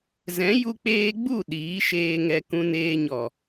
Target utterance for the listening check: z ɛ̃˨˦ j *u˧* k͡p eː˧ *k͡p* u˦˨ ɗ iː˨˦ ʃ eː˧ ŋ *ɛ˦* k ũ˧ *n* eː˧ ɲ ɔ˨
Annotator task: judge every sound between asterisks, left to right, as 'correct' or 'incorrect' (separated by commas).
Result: correct, incorrect, incorrect, correct